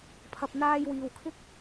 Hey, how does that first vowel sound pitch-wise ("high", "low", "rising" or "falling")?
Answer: low